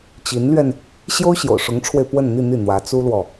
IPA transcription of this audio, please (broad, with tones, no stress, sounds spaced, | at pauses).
t͡ɕ i˧˥ n l ɥ ɛ˧ n | ɕ j o˥ ʊ̯ ɕ j o̰˨˩ ʊ̯ ʂ ʊ˧˥ ŋ ʈ͡ʂʰ w e˧ ɪ̯ p w ə˥˧ n n̪ i˥˧ n̪ i˥˩ n̪ w ä˧˥ t͡s u˥ l w ɔ˨